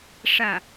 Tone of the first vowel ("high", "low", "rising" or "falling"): falling